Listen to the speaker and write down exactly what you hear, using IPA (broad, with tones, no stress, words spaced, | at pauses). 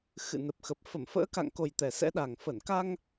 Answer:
xɨ̰˧˨nə˨˩p̚xə˨˩p̚ fə˧˩mfə̰ː˧˥ka̰˧˨ŋko˨˩j t̪ɛ˨˩sɛ̰˧˥ɗa˨˩ŋ fə˧˩nka˧ŋ